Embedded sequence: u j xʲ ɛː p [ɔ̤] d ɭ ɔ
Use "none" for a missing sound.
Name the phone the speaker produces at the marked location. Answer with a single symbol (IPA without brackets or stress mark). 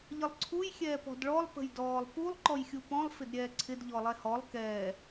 ɔ̤